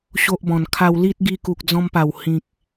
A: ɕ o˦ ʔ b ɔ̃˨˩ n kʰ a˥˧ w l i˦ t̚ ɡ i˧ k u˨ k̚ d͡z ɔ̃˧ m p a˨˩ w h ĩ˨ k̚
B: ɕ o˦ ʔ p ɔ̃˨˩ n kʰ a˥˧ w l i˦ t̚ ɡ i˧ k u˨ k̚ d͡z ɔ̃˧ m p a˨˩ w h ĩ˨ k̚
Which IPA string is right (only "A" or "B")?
A